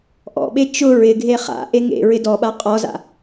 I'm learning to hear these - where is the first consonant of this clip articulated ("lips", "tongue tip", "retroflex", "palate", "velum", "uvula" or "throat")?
throat